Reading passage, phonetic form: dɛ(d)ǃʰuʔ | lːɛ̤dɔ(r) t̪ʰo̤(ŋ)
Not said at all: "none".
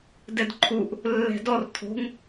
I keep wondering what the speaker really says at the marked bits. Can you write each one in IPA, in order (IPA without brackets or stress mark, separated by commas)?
d, r, ŋ